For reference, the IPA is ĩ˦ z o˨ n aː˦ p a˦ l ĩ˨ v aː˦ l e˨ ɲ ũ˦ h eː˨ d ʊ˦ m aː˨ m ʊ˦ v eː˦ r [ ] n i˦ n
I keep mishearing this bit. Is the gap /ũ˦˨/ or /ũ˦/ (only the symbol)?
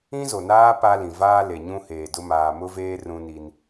ũ˦